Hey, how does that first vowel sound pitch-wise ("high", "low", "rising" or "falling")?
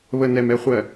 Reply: low